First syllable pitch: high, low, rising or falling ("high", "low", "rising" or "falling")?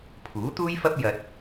rising